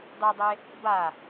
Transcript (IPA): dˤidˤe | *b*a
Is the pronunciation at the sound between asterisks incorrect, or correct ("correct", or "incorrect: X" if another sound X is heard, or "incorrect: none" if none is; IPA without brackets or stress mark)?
correct